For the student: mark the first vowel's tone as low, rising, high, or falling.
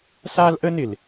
high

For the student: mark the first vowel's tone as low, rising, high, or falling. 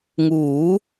rising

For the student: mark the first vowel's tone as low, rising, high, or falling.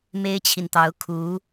high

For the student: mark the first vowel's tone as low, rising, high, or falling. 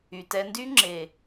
low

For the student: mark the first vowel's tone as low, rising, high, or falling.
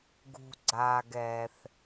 low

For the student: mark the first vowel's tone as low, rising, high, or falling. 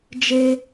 high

